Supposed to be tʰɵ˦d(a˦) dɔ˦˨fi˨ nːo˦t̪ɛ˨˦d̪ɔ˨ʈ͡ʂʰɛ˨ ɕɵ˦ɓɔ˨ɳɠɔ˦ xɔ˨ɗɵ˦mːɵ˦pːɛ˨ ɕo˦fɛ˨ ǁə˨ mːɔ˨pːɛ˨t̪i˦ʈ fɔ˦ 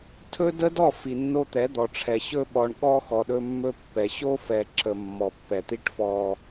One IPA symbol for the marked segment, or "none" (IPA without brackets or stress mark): ə˦